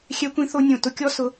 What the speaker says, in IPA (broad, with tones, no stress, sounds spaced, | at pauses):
xʲ ɛ˥ kʷ ĩ˥ θ o˥ nʲ õ˥˩ t ʊ˥˩ kʲ ɔ˥ s ʊ˥